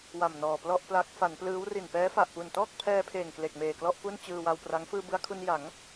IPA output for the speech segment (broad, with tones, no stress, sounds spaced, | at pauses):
w a˨˩ m n ɔː˨˩ p l ɔ˥˩ ʔ p l a˦˥ k̚ f a˩˦ n p l ɯː˦˥ w r i˨˩ n p ɛː˦˥ f a˨˩ ʔ p u˨˩ n t ɔː˥˩ k̚ pʰ ɛː˧ pʰ eː˨˩ ŋ k l e˨˩ k̚ m eː˨˩ k l ɔ˥˩ ʔ p u˥˩ n t͡ɕ ɯː˧ w a˧ w p r a˦˥ ŋ f ɯː˧ b ɯ˧ a̯ kʰ u˧ n j a˩˦ ŋ